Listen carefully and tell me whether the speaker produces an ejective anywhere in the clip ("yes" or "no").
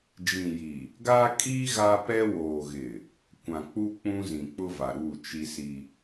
yes